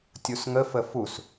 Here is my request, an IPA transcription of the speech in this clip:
tʲ u s ŋ ə f ə f u s

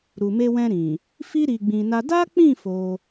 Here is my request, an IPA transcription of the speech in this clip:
ɾ u˨ m e˧ w ɛ̃˧ ɾ ĩ˨ | f i˦ ɾ i˧ ɡ͡b ĩ˧ n a˦ d a˦ k͡p ĩ˦˨ f o˧

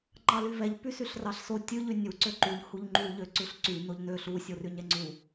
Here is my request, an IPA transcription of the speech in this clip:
ŋ͡ǃ ɑ l y v ɛ ʎ p y s y ɬ r ɑ ɬ s o tʲ ʉ ʎ y nʲ u ǀ ø ǃ u ʎ h u ʎ ŋ͡ǃ u ʎ ø ǀ ʉ ɬ ǀ y n o ʎ n ø ɬ u sʲ o r y ɲ ɛ ŋ͡ǀ u

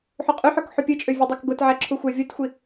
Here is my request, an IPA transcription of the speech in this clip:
ħ u qʼ y ħ ø k ħ u pʲ ɯ t͡ʃʼ ø vʲ e dˤ ø k ɡ o t ʕ æ ǁʰ u xʷ æ vʲ o t xʷ i

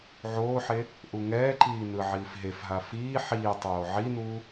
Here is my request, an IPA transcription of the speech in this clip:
ʕ oː ħ e | ʔ u ŋ ɛː ǃ iː n ɯ ʕ iː f ɦ e f ɦ a f iː ħ iː tˤ oː ʕ i n uː

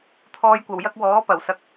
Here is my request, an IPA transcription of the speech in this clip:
t̪ʰ ɔː˧ j kʷ ɐ˨˩ w j ɐ˥ k̚ w ɔː˨˥ p ɐ˨˩ w s ɐ˨ k̚

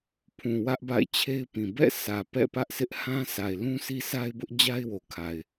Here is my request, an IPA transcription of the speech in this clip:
pʰ ũ˨ w ä˦ ʔ b a̰˦˨ ɪ̯ t͡ɕʰ e˦ ɪ̯ p ĩ˨ b ɛ̰˦˨ sʰ ä˨ p ɛ̰˦˨ p ä˦ ʔ s ɪ˦ ʔ h ã˦ s a˨ ɪ̯ l ũ˦ sʰ i˦ sʰ a˦ ɪ̯ b ʊ˦ ʔ d͡ʑ a˦ ɪ̯ w o˨ kʰ a˨ ɪ̯

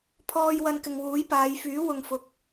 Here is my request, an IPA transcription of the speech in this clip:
pʰ ɔː˧ j w ɐ˧ n k ɪ˨ ŋ w uː˨˥ j p aː˨˧ j f yː˨˥ w ʊ˨ ŋ f ʊ˨ k̚

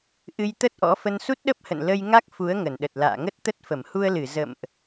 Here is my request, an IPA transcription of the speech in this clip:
ʔ ɨ˧ j t̪ ə˦˥ t̚ ʔ ɔ̰˧˥ f ə˧ n s u˦˥ t̚ ɗ ə˦˥ p̚ h ə̰˧˨ n l ə˧ j ŋ a˦˥ k̚ f u˨˦ ə̯ ŋ ə˧˩ n ɗ ə˨˩ t̚ l a̰ː˧˨ ŋ ə˦˥ t̚ t̪ ə˦˥ t̚ f ə˧˩ m h u˧ ə̯ l ɨ˧˩ z ə̰˧˨ m ʔ

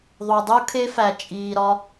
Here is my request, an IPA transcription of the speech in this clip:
ðˤ u˨ dˤ u˧ kʰ e˧ f æ˨ t͡ʃʼ iː˨ ɾ ɒ˧

